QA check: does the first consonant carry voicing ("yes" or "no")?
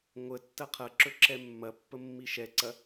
yes